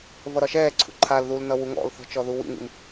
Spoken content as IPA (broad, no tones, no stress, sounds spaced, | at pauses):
v ʌ ɾ ɒ ʃ ɛː ǀʰ ṵ ǃʰ a l ð u l n ʌ w u ŋ ɔ̰ l θ ɔ̤ t͡ʃ ɔ ð u w ḭ ŋ ḭ m